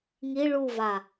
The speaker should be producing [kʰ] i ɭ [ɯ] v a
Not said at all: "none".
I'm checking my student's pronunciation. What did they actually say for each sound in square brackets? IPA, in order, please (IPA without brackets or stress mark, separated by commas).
ŋ, u